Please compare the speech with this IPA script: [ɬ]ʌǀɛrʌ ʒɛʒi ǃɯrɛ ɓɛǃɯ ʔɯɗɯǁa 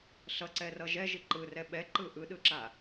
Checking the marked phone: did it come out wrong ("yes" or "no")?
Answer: no